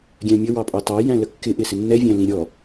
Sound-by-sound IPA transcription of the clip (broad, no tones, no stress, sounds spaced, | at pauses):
ɡʲ æ̃ mʲ ə w ɑ pʼ ɑ t ɑ j æ̃ l ə kː ɪ ʔ ɪ s ɪ nː ɛ vʲ æ̃ l ĩ ɾʲ ɔ